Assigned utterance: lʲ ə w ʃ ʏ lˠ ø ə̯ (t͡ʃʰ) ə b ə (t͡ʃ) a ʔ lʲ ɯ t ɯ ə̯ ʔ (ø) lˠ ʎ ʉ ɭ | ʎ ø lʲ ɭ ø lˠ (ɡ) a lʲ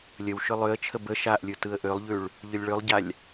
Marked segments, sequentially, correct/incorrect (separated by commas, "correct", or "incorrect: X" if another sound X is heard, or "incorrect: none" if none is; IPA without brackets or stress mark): correct, incorrect: ʃ, correct, incorrect: ɟ